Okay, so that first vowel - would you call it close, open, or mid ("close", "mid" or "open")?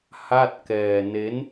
open